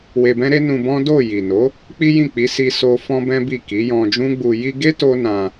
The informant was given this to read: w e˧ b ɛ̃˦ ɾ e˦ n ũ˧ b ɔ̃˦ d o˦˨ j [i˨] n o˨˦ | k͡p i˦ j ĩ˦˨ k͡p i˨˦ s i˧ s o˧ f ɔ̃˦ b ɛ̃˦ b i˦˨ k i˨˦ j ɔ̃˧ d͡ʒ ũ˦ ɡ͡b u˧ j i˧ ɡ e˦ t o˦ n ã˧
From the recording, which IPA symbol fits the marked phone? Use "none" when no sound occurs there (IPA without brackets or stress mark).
i˨